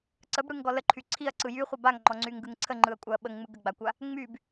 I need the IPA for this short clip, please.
ǀ ə b ɽ ɯ ŋ ɡ ɔ l ə ǃʰ y ǀʰ i ɐ̯ ǀ ɯ j y χʷ ə b a ŋ ŋ͡ǃ ɔ ŋ͡ǀ y ŋ ɡ ɯ ŋ ǀʰ ə ŋ͡ǃ ɯ ɐ̯ kʷʼ a ɐ̯ ɓ ə ŋ ŋ͡m ɯ ɡ ə ɡ͡b a kʷ a | ŋ͡m y b

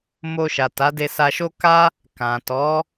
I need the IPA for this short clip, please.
m o˧ ʃ a˨ t a˨˦ d e˧ s a˧ ʃ o˦ k a˦ | k ã˨ t ɔ˨˦

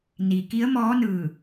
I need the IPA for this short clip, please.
n i˩ k i˧˥ ə̯ m ɔː˧˥ n ɯː˧˩

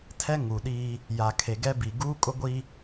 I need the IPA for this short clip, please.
tʰ ɛ˦ ŋ u˨ ɗ iː˦ | j a˨ kʰ e˨ ɡ ɛ˦ b i˨ ɡ uː˦ kʼ ʊ˦ ɡʷ i˦

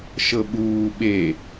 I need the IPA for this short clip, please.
ʃ ɤ ɓ uː ɓ e

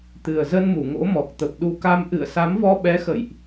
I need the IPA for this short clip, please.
t̪ ɨ˨˩ ə̯ z ə˧ n m u˧˩ ŋ o̰˧˥ m ɔ˨˩ k̚ t̪ ə˨˩ p̚ ɗ u˨˦ k a˧ m ʔ ɨ̰˧˨ ə̯ s a˨˦ m v ɔ˧ ɓ ɛ˨˦ x ə̰˧˨ j ʔ

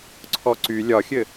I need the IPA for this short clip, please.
ǀʰ ɔ ǀ y lʲ ɒ xʲ ɘ

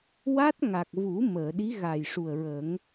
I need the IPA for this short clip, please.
w a˦˥ t̚ ŋ a˨˩ k̚ v u˨˩˦ m əː˨˩˨ ɗ i˧˥ ɣ a˨˩ j ʂ u˨˩ ə̯ ɹ ə˨˩˦ ŋ

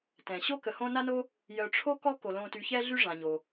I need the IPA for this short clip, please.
t ɛ̃˩ ɕ o˥ k ə˨ h õ˦ n a˥ n o˥ | j œ˨ ʈ͡ʂʰ o˥ k ɔ˥ k o˩ l õ˨ t y˨ ç ɛ˦ ɮ y˦ ʐ ã˩ ɲ o˩

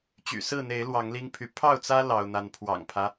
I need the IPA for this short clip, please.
t͡ɕ y̰˨˩ s ɹ̩˥˨ n̪ e˨˦ ɪ̯ l w ɑ˨˦ ŋ l i˦ ŋ pʰ y˨ pʰ ɑ˥˨ ʊ̯ t͡s ä˦ l ɑ˦ ʊ̯ n̪ a˦ n pʰ w ɑ̰˨˩ ŋ pʰ ä˦

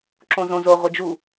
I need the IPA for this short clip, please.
ǁ õ z õ z o ʁʷ e d͡ʒ u

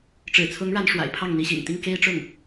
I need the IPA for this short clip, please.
ʈ͡ʂ ɻ̩˨˩ t͡sʰ ʊ˧˥ ŋ ɻ a˧˥ n ʂ w a̰˨˩ ɪ̯ pʰ ɑ˥˩ ŋ n̪ i˧˥ ɕ ḭ˨˩ ŋ t̪ i˥˩ ŋ k e˥ ɪ̯ ʈ͡ʂ ʊ˥˩ ŋ

